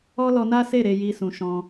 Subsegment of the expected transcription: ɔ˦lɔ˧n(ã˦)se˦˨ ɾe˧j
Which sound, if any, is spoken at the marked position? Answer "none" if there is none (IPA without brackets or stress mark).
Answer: a˦